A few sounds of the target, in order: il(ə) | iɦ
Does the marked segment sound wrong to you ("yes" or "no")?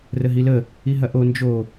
no